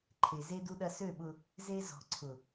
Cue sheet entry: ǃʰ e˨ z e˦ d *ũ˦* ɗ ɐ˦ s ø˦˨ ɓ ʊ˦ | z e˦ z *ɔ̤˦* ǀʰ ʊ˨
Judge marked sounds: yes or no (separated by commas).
no, no